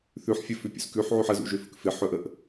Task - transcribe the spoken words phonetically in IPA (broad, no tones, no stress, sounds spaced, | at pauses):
θ ʉ ħ fʲ ə f ʉ pʲ ṵ s k ʉ ħ ʕ ʉ ħ ə z ṵ ʒ ø f ɵ k f ɪ ħ ɵ ʔ ə ʔ